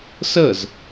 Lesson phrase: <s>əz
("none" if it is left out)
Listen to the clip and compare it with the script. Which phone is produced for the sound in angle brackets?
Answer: s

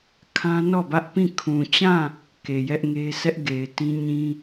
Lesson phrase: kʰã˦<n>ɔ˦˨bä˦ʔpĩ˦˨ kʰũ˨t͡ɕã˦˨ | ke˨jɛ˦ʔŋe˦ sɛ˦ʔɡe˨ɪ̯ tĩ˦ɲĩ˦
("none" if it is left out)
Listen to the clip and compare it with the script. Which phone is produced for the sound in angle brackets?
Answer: n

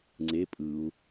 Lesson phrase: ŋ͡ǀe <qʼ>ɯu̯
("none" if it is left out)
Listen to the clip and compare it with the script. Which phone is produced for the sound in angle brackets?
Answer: pʼ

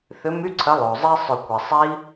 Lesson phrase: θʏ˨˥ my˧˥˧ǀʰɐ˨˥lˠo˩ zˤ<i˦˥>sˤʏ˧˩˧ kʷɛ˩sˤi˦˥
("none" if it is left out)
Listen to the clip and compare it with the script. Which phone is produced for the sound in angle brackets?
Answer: i˦˥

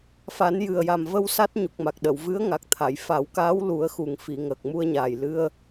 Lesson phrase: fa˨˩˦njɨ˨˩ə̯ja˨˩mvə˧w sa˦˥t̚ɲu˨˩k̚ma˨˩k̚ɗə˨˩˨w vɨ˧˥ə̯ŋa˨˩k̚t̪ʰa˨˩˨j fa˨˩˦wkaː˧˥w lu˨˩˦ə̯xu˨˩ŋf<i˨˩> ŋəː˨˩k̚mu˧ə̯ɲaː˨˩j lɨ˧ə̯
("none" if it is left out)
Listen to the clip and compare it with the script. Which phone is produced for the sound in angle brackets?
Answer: i˨˩˨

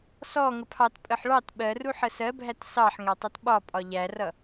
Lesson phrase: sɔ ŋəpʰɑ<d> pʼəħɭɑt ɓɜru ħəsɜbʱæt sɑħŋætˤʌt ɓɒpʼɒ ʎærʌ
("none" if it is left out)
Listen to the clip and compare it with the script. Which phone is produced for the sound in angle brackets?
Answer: t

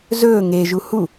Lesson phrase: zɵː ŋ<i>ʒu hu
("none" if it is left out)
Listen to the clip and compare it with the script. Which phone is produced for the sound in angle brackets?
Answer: e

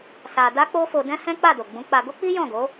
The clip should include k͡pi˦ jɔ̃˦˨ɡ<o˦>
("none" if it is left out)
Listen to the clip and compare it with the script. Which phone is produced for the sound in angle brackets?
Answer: o˨˦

